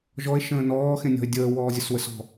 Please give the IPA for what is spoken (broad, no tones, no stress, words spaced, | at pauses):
ʒɔe̯ ʃə̃ːnɔːxẽnʲɔ̤e̯ dʲəːwɔːzʲəswəs ɔ̤